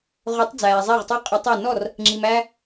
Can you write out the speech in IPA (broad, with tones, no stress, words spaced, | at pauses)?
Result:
ʁʊ˨˥tˤ d͡zæː˩zˤɛ˥˩ʁtˤu˥˩ qʼə˨˥tˤɛ˥˩ nɔ˥˩r | ŋ͡ǁi˩mæ˧